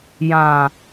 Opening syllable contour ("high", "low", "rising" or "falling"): low